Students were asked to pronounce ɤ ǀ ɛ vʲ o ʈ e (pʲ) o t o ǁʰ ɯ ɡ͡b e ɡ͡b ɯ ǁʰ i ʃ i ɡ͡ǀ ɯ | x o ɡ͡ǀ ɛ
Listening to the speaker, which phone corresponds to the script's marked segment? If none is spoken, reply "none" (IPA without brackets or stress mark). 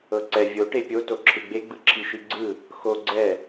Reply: pʲ